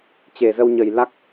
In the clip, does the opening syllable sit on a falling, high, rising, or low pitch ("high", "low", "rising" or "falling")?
low